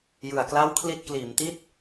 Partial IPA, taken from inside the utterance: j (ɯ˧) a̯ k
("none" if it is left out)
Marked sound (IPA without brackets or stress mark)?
ɯ˨˩